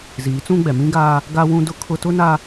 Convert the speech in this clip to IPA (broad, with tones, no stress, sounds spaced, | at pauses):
z iː˨˦ t͡s ũ˦ ɡ͡b ɛ˨ m ĩ˦ ɡ aː˦ | ɡ a˦ w ũ˦ d ʊ˦ kʰ ʊ˦ t ʊ˦ n a˦